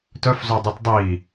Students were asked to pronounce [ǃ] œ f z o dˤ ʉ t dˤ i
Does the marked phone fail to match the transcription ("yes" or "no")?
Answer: yes